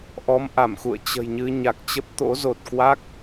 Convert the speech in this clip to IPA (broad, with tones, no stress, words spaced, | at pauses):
ʔɔ˨˦mʔa˧˩mxṵ˧˨ə̯ t͡ɕə̤˨˩jɲɨ˧ ɲa˨˩k̚t͡ɕə˦˥p̚ t̪o̰˧˥zo˨˩t̚kwa˦˥k̚